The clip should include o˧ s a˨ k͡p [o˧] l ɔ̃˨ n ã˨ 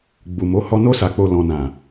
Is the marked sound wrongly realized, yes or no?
yes